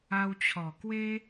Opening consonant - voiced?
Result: yes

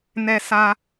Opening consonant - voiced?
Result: yes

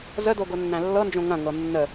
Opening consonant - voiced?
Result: yes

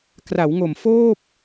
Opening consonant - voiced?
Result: no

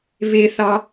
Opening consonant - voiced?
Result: yes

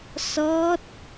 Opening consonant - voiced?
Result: no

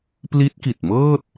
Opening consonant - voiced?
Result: no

